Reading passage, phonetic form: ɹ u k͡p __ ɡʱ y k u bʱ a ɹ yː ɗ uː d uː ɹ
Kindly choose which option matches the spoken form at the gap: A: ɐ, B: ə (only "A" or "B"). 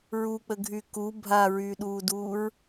B